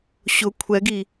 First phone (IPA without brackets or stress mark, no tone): ɕ